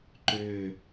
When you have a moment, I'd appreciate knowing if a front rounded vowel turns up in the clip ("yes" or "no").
yes